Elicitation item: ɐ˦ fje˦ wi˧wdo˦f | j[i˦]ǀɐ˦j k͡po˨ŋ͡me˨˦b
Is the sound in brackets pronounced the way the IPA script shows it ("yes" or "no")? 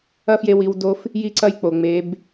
yes